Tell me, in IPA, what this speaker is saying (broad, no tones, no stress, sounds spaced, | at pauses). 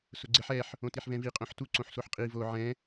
s ʊ ɡ͡ǀ ɪ ħ ɛ ħ | õ t i ħ v ɛ̃ v i qʼ õ ħ t u ǀ õ ħ s o ħ qʼ i v o ʕ ɛ̃